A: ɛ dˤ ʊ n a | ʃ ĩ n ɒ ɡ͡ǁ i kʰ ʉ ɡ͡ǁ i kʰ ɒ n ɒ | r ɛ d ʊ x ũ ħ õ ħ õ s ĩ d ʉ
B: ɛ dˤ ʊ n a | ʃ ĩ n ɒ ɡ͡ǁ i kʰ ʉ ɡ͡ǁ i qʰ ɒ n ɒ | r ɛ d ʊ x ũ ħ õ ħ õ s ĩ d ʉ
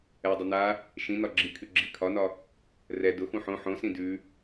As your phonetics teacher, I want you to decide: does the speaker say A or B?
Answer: A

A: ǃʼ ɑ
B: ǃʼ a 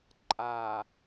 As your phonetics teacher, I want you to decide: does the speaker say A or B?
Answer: B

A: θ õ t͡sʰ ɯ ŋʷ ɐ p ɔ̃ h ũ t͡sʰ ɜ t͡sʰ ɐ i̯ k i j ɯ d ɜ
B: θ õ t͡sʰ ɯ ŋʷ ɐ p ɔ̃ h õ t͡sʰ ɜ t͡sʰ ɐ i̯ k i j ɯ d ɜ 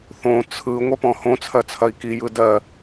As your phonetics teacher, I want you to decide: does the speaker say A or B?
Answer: B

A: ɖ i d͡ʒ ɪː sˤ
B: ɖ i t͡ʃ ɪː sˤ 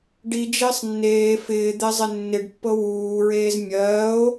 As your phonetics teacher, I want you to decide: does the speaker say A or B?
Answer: A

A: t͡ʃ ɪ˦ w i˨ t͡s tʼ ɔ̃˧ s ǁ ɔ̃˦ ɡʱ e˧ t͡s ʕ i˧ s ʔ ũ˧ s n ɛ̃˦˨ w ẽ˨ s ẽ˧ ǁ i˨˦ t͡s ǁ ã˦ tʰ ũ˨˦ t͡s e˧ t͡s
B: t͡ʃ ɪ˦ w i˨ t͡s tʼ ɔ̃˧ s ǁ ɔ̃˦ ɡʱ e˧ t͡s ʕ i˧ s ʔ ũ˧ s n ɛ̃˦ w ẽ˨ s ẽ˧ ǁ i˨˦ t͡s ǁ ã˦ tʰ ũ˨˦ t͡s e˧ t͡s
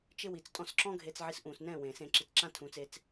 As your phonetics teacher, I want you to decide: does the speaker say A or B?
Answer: A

